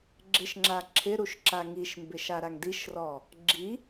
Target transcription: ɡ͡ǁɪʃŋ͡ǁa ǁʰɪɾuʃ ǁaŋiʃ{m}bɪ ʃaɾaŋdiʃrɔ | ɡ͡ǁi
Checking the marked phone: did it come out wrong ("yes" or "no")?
no